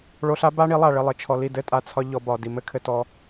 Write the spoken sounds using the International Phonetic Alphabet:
ɭo˧ɬa˦ ba˦ɳi˨˦lˠa˨ɭɘ˧ lˠɘ˨t͡ʃʰɔ˧ li˦˨dɘ˦tʼa˧ t͡sʰɒ˦ ʎɔ˧ bɒ˨ di˨mɘ˦ kʰɘ˦tɔ˦

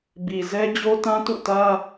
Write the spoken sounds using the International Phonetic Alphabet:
bi˨zɛ˦ d͡ʑo˦tã˦tṵ˦˨tä˦

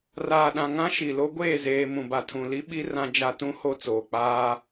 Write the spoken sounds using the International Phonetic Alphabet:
raː˨ɗã˨ŋã˦ ʃi˨lo˦ ɡʷeː˦˨zeː˨ mũ˨ba˨tʰũ˨li˦ ɓi˦ rã˦d͡ʒa˦ tũ˦ho˦˨ t͡soː˨k͡paː˦

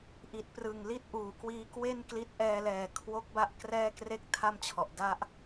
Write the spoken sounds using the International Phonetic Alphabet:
ʔi˨˩t̚prɯ˨˩ŋli˥˩t̚ ʔuː˨˩kwiː˦˥kwe˥˩nkli˦˥t̚ ʔɛː˧lɛː˨˩ kʰwo˦˥k̚ba˦˥ʔ krɛː˥˩kre˥˩k̚tʰa˥˩mt͡ɕʰɔ˨˩ʔ da˦˥ʔ

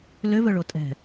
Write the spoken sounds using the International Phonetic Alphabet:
løvœɭo tʼɛ̤

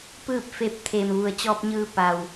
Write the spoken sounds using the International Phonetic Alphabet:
pɯː˥˨p̚fe˧˥p̚ t̪ʰeː˩mʋu˩ə̯t͡ɕɔː˧p̚ɲɯː˧ pa˩w

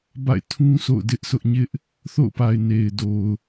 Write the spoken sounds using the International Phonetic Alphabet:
ba̰˦˨ɪ̯ tʰũ˦ so̰˦˨ʊ̯dɪ˦ʔsʊ˦ʔɲɪ˦ʔ | θo̰˦˨ʊ̯pa˨ɪ̯ ne˨ɪ̯do˨ʊ̯

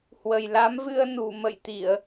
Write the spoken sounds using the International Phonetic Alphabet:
hwə˨˩jla˨˦mvɨ˧ə̯ nu˧˩mə̰˧˨jt̪i˧˩˨ə̯

